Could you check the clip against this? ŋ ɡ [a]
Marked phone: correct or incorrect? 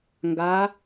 correct